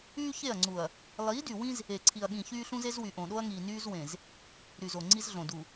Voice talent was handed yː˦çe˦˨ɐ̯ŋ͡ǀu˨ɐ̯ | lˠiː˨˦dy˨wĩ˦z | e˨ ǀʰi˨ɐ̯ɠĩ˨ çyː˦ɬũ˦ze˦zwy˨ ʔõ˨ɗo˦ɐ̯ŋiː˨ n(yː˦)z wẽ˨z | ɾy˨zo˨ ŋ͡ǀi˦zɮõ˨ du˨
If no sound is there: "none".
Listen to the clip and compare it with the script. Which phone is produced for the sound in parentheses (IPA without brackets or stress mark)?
yː˦